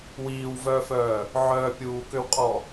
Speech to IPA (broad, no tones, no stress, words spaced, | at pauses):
wiːwvœːfœː | ʕœːpʲuːkøwqʼɔ